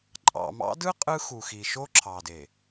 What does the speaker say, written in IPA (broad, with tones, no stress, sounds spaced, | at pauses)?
ǃʼ ɑ̰˨ m ɑ̰˦ d ɯ˦ qʼ ɯ˦ x u˨ x i˨ ʃ o˦ ǁʰ ɑ˨ d e˨